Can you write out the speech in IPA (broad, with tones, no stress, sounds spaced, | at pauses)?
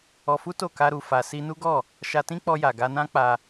ɔ˧ f u˦ t o˦˨ k a˧ ɾ u˨ f a˨ s i˧ n u˦ ɡ ɔ˦˨ | ʃ a˧ t ĩ˦ k͡p ɔ˧ j a˨ ɡ a˧ n ã˦ k͡p a˧